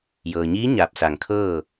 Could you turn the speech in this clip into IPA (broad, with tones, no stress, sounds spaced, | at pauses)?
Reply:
j ɤː˩ ɲ iː˧˥ ɲ aː˧˩ p̚ s a˧˩ ŋ kʰ ɤː˥˨